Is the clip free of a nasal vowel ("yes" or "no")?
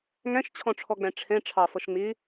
no